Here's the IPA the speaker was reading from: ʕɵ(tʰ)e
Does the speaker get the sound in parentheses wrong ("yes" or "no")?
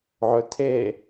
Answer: no